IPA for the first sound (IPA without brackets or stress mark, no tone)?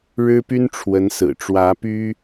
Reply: ɻ